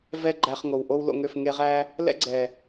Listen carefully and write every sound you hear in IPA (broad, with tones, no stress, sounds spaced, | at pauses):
v ɛ˦ ɡ͡ǃ æ˧ χ ŋ o˨ w ʔ o˦ w l o̰˧ ŋ ø˦˨ f ŋ e˧ ʁ æ˦ | l ɛ̰˦ ɡ͡ǀ ɛ˨